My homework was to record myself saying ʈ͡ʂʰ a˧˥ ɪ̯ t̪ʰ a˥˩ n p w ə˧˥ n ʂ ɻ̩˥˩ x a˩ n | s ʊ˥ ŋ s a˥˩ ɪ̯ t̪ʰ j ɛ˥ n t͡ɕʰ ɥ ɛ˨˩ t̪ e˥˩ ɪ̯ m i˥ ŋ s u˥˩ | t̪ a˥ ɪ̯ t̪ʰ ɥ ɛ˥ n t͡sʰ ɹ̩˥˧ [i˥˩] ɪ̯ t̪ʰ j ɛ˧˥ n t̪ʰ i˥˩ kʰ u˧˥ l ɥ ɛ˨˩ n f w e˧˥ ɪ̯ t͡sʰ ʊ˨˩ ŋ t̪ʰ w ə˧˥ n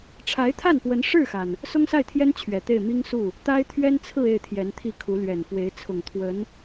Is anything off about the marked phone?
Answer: yes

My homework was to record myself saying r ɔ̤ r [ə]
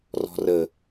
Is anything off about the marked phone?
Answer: no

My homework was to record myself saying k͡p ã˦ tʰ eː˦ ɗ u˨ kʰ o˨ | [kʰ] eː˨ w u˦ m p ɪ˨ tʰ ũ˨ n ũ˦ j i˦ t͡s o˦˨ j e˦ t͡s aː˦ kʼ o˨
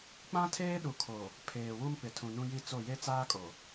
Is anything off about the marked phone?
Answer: yes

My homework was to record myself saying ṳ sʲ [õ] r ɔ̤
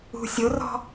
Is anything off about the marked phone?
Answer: yes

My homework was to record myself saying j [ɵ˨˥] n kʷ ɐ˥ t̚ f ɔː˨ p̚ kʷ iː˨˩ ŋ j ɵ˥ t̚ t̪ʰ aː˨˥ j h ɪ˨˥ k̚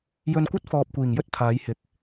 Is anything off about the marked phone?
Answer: yes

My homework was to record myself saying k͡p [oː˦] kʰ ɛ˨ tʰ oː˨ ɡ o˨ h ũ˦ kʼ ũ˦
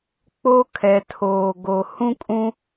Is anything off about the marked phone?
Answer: yes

